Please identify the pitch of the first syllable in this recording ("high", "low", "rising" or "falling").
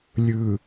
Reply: low